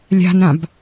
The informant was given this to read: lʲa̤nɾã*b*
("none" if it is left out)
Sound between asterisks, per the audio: b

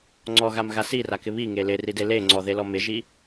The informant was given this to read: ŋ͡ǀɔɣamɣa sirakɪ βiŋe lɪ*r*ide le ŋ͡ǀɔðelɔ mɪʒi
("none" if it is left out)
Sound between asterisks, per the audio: r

